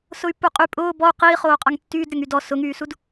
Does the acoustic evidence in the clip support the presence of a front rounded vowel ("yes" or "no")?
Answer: yes